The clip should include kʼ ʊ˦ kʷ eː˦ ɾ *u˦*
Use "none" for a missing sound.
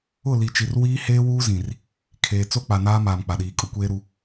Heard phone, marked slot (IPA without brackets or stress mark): u˦